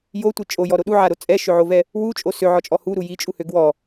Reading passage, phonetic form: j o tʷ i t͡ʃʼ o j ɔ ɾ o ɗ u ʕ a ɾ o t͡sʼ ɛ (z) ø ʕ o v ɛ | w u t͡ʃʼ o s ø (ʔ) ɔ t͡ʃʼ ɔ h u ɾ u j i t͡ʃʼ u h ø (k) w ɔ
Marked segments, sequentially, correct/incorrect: incorrect: ʃ, incorrect: ʕ, incorrect: ɡ

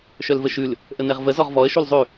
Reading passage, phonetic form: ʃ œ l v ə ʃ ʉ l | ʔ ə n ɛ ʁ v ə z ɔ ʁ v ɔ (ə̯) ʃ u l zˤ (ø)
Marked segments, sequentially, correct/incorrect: correct, incorrect: ʉ

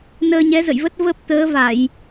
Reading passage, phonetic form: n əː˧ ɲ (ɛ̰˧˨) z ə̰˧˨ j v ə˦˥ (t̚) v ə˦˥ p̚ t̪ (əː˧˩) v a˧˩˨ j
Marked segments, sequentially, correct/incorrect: incorrect: ɛ˨˦, correct, incorrect: əː˨˦

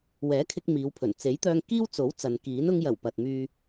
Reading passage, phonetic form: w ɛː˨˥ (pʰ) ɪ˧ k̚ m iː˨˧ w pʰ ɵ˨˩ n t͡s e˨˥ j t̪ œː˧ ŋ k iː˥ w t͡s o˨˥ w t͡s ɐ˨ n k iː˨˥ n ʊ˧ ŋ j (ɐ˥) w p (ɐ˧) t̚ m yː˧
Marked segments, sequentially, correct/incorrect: incorrect: kʰ, incorrect: ɐ˨˩, incorrect: ɐ˨

